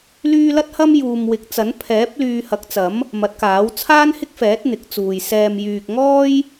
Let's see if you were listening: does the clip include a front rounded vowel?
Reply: yes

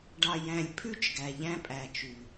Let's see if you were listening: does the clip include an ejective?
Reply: yes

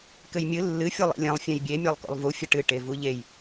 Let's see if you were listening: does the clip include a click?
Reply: no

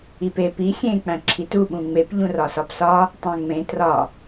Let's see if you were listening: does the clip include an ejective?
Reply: no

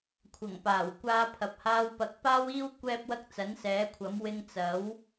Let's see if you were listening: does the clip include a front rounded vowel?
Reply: no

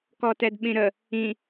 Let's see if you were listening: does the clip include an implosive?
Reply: yes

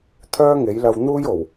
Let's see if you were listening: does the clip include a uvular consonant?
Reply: no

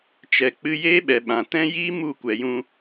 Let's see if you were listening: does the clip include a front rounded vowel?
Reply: no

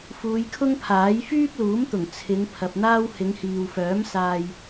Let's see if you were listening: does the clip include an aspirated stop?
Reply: yes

